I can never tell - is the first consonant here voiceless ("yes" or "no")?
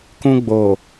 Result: yes